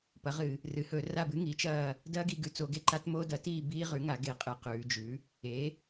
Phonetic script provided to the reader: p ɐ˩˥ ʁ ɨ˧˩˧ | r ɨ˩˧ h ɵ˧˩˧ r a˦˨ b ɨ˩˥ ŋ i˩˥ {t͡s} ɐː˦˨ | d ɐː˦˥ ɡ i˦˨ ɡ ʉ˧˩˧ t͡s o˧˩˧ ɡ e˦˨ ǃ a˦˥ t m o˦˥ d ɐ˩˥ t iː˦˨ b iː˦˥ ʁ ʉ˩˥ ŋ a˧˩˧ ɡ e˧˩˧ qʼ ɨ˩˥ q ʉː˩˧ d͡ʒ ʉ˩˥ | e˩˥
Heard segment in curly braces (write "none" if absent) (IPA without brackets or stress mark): t͡ʃ